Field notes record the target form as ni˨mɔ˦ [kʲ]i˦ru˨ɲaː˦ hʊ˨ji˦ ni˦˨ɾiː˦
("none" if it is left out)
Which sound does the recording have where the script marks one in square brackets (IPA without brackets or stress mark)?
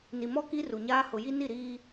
k